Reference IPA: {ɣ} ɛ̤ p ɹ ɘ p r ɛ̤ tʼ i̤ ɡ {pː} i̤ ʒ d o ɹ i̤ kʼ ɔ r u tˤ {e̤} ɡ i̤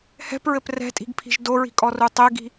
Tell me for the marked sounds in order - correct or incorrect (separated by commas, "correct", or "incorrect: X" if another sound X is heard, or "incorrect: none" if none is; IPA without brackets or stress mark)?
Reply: incorrect: h, incorrect: pʰ, incorrect: e